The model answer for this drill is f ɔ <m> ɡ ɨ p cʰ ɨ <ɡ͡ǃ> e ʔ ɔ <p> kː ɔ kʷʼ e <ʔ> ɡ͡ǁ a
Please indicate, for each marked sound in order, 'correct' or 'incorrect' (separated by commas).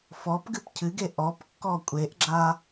incorrect, incorrect, correct, correct